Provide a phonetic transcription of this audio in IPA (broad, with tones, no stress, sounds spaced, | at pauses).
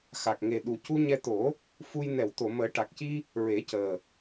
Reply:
x a˨˩ k̚ ŋ e˨˩ ɗ u˨˩ c u˧ ɲ ɛ˧ t̪ o˨˩˦ | f u˧ j n ɛ˨˩˨ w t̪ o˨˩˨ m əː˨˩˦ ʈ a˨˩ k̚ c i˧ | ɹ e˨˩˦ c əː˨˩